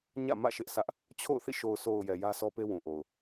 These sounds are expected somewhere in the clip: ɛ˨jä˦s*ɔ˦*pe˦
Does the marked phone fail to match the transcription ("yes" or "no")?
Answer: no